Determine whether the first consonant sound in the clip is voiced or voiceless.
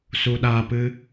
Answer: voiceless